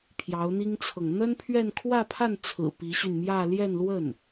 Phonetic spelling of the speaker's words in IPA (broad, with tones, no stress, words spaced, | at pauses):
pʰjɑ˧˥ʊ̯n̪i˥ŋt͡sʰɤ˨ŋ n̪ə˥npʰɥɛ˥˧n kʰwä˥˧pʰa˥˩nt͡sʰɹ̩˨˩ pi˧˥ɕy˧nmjä˥˧ ljɛ˥˧nlwə˥˩n